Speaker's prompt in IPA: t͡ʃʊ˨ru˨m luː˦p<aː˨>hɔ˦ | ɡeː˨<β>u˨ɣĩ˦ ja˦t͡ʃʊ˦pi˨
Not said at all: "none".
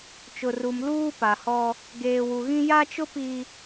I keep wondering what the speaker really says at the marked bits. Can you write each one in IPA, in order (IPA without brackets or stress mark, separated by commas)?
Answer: a˨, w